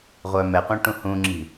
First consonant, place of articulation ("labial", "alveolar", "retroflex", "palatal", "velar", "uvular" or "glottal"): uvular